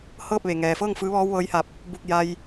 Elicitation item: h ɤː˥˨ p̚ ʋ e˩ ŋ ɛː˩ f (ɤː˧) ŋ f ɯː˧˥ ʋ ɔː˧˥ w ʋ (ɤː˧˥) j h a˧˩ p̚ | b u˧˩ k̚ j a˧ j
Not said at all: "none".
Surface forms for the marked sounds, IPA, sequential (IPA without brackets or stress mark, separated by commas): ɤː˥˨, ɤː˧˥